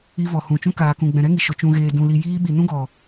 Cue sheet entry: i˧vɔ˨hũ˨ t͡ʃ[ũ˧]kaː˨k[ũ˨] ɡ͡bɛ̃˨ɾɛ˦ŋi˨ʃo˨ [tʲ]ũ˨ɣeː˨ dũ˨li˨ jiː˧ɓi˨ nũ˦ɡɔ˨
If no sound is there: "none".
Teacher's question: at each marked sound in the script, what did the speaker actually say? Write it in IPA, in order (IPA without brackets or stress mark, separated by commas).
ũ˧, ũ˨, t͡ʃ